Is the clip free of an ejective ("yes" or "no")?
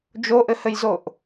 yes